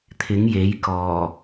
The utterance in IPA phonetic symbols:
t̪ʰ ɪ˨˥ ŋ j e˨˥ j k ɔː˨˩

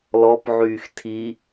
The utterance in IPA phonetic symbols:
l ɔ p ʕ yː x tʰ i

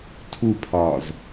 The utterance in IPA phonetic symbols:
tʰ u pʰ ɒː z

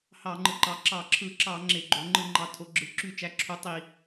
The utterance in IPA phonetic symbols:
h ɑ˧˩˧ ŋ͡ǃ ɯ˩˧ ǃ ɑ˩˧ ǁ ɑ˧˩˧ ǁʰ ɯ˧˩˧ ǁ ɑ˧˩˧ ŋ͡ǁ e˧˩˧ ɡ͡ǃ o˩˧ ŋ͡ǃ ɯ˧˩˧ ŋ͡ǃ ɑ˩˧ tʰ o˩˧ ɡ͡ǁ ɯ˩˧ ǁ y˧˩˧ t͡ʃ æ˩˧ ǁʰ u˩˧ tˤ i˧˩˧

